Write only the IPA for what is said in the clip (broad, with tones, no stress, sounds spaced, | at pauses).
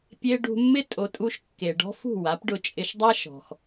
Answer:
pʲ e˧ ɖ ṳ˧ mː ɪ˦ tʼ o˨ tʼ u˧ ʃ kː e˨ ɖ ɔ̤˦ f ṳ˦˨ w a˨˦ p ɖ ʊ˧ t͡ʃʼ ɪ˧ ʃ dˤ a˦ ʃ ɔ̤˨ x